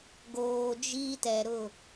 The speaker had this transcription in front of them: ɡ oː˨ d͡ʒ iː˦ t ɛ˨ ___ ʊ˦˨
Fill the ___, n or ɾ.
ɾ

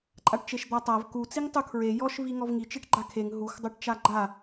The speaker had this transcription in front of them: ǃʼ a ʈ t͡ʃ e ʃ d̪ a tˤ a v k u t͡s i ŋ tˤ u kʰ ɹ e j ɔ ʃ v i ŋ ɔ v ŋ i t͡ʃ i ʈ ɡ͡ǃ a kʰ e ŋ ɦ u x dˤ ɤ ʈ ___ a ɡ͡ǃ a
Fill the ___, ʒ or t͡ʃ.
t͡ʃ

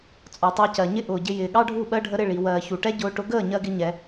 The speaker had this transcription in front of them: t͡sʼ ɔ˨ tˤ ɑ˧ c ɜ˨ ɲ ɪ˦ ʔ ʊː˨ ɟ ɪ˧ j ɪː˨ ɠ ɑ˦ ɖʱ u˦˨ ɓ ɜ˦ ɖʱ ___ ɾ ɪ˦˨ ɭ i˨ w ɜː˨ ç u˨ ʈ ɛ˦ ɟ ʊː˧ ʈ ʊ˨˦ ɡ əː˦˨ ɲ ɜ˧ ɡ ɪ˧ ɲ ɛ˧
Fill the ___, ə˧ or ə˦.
ə˧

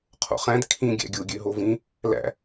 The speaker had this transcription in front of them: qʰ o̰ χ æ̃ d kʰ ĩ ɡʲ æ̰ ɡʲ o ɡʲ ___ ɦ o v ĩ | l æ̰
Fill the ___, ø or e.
ø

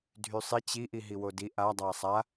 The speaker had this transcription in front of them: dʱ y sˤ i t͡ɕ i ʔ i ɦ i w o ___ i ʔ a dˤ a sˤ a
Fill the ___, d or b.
d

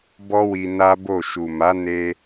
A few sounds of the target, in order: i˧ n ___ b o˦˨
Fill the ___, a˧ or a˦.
a˦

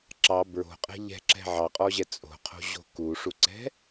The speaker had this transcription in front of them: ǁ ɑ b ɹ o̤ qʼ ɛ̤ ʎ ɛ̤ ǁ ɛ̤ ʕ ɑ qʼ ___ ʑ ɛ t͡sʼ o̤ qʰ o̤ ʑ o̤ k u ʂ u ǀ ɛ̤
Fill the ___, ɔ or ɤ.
ɔ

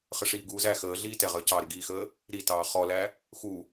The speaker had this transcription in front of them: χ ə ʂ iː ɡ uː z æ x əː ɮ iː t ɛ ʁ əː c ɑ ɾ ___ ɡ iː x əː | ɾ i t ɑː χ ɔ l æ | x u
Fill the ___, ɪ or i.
ɪ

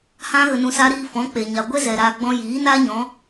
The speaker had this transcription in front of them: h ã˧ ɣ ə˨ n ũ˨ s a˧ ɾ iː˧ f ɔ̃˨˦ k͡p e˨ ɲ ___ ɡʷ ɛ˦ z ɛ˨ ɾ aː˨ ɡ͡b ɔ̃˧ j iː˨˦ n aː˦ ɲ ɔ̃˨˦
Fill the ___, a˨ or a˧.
a˨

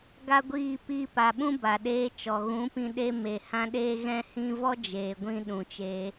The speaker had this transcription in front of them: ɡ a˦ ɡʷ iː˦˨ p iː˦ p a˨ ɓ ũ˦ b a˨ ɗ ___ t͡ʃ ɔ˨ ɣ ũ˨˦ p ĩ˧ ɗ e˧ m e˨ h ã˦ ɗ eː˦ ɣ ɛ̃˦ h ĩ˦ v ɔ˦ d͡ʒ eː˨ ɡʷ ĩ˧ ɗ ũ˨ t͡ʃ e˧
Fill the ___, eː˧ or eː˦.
eː˦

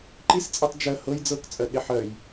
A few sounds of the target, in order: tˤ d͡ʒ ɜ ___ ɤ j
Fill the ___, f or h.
h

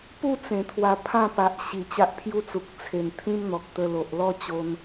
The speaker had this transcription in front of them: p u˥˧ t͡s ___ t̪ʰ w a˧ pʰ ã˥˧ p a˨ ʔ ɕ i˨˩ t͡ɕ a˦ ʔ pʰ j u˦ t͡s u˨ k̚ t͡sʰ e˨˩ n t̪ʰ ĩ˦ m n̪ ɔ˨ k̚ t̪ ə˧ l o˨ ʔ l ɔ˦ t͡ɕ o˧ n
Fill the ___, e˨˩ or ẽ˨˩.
ẽ˨˩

